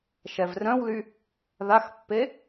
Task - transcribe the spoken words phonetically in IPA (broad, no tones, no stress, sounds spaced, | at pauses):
ʃ ɛ v r œ̃ w l y | ð a x pː e